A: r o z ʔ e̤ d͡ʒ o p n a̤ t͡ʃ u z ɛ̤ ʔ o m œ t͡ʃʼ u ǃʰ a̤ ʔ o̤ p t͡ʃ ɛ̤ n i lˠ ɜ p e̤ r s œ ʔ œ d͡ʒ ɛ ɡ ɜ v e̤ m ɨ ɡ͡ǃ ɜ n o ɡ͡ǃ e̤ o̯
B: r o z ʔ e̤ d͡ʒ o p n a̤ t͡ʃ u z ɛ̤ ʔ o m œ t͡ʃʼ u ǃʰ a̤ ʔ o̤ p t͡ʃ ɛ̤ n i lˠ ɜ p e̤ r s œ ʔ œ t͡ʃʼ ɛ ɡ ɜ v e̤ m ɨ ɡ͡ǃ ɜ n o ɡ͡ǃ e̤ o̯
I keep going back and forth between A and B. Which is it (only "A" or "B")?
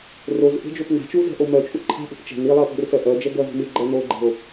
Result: A